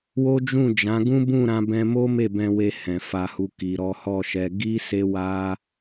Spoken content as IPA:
wo˦d͡ʒũ˦˨d͡ʒã˨˦ ɡũ˦bũ˦˨ ɾã˧bɛ̃˧mo˦ me˦˨bɛ̃˧we˧ hɛ̃˨fa˧hu˧ ki˨ɾɔ˨˦hɔ˦˨ʃɛ˧ ɡi˦ se˦wa˦

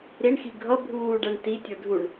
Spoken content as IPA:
ɾiɳxi ɡʱʌ bʱuːɖæɳ ti tʲə˞dʱuɳ

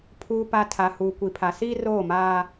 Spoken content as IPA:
pʰuː˨pa˨ tʰa˨huː˨ kʷi˨pʰa˨ siː˦roː˦˨maː˦

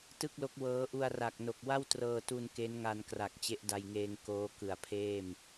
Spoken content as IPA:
tɯ˥˩k̚lo˦˥k̚wɤː˦˥ ʔu˧a̯ra˨˩k̚ no˨˩k̚wa˥˩wtrɤː˧tu˧n ke˦˥nŋa˧n kra˨˩k̚t͡ɕe˦˥ʔda˧jŋeː˧ŋ koː˦˥kɯ˨˩a̯pʰeː˥˩m

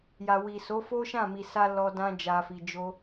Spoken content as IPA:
ja˨wi˨ so˨˦fo˦ʃã˦˨ mi˨sa˧ lɔ˧ dã˦ d͡ʒa˧fi˧d͡ʒo˦

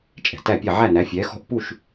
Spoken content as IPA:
t͡ʃʼɛ̤˩tæ˥˩pʲɛ˥˩ ʕæ˥˩næ˩˥fʲɛː˩˥xɔ̤˥˩ʔ pu˥˩ʃ

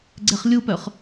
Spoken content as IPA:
ɡ͡ǀɛχlʲupœχ

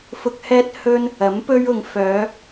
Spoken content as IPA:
fʊ˧k̚hɛː˥t̚hɵ˥n | ɐ˨˥mpɵ˥ɥʊ˧ŋ fœː˨˧

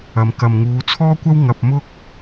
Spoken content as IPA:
ɐ˨m kɐ˨mŋuː˨˧t͡sʰɔː˥kʷɐ˥w ŋɐ˧p̚mʊ˥k̚

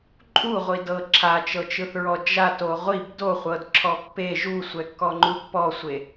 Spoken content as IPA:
ǃʼuʁʷi dɤ ǁʰat͡ʃɤt͡ʃɯθɹɔ d͡ʒato ʁʷib doχʷɤdǁʰɔ pːe ʒusʷɛkːɔŋ͡ǃu pːɔsʷe

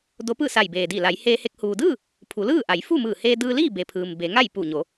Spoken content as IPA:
do˧˥pɯː˥˨ sa˧˩j beː˩di˧˩ la˩˧jheː˧he˧k̚ huː˩dɯː˥˨ | pʰu˩˧lɯː˥˨ʔa˩˧j fu˥˨mɯː˧˩heː˧dɯː˧ liː˥˨be˩ pʰɯː˩m be˩˧ŋa˥˨j pu˧˩ɲo˩˧

